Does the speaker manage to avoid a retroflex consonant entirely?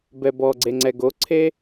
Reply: yes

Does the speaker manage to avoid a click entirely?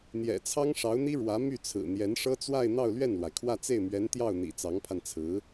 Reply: yes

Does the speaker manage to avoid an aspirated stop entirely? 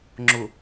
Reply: yes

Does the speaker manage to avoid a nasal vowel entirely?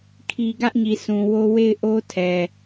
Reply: no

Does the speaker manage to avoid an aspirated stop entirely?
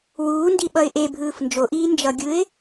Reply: yes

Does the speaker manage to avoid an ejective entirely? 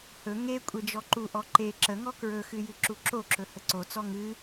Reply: no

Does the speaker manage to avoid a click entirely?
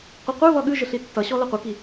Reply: yes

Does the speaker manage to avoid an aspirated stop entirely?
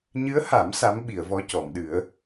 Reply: yes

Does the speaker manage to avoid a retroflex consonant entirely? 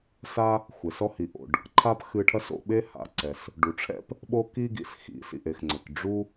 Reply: no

